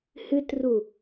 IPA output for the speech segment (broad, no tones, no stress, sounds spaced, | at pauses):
h ɨ t r u